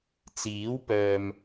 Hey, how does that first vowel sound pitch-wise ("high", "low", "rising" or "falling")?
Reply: rising